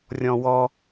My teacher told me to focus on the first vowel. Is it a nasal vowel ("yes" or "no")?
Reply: yes